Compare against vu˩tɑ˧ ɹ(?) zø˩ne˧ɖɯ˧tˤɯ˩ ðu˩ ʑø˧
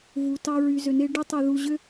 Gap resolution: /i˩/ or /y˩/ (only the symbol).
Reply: y˩